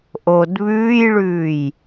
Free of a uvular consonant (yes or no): yes